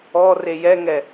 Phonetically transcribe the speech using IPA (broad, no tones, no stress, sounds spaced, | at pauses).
ɔ r e j ɛ ŋ ɛ